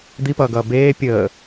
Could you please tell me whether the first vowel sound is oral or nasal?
oral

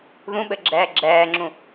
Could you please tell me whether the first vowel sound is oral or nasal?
nasal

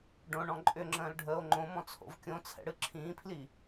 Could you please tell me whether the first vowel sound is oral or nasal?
nasal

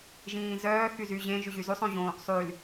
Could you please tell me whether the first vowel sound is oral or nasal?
nasal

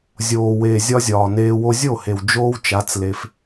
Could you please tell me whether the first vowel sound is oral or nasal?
oral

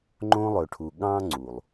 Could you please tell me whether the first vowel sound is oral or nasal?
nasal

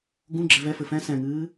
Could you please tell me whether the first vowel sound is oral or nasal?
nasal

